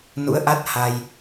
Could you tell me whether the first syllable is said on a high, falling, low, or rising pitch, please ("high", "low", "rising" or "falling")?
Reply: rising